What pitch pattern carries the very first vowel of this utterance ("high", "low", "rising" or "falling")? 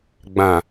low